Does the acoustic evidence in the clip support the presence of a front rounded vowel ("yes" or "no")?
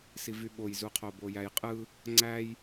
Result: yes